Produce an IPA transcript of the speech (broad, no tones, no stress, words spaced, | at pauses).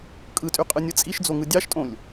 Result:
kʼɯtʼyqʼɯnʲɯ t͡sʼiʃd͡zoŋɯ dʲɑʃtʼõlʲ